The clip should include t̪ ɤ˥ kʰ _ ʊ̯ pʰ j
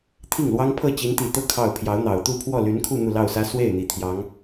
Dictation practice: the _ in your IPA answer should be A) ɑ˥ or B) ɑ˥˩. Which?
B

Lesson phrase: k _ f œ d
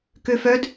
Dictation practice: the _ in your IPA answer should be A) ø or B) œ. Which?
A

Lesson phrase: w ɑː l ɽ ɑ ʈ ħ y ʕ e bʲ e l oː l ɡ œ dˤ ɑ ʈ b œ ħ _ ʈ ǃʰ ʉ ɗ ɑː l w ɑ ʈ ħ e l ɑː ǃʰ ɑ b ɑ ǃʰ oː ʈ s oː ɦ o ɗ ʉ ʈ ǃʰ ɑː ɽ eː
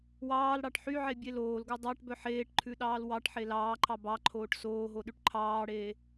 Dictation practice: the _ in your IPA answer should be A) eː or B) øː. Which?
A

